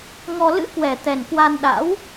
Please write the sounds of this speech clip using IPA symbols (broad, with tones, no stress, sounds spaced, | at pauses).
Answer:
ŋ ɔ˧ l ɨ̰˧˥ k w ɛ˨˩ t̪ ɛ˨˩ n k w a˧ n ɗ a̰˧˥ w